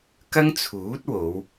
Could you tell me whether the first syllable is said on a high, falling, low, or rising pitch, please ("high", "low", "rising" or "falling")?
high